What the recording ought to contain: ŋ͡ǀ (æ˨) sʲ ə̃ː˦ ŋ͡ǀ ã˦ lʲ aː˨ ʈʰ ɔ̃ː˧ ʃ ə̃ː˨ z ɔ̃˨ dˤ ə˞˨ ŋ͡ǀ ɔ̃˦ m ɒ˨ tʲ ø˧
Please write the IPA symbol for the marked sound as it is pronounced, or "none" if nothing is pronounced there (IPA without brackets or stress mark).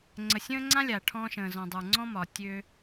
ə˨